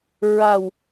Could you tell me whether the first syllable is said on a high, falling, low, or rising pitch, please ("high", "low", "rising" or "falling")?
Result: low